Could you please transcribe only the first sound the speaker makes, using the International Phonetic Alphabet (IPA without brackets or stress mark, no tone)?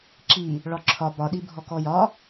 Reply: ǁ